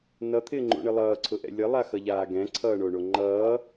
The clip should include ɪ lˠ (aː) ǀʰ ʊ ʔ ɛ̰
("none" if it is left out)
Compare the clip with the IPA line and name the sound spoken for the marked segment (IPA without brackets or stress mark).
ʌː